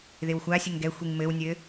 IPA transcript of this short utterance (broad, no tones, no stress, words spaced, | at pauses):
ðɪwxʷa sʲɘŋɡɛ xʷiŋmɘw nʲɘ